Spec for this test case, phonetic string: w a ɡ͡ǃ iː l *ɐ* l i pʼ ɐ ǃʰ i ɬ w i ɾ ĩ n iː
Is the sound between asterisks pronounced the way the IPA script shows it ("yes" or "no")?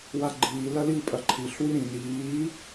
yes